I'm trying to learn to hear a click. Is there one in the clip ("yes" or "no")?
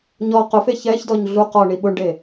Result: no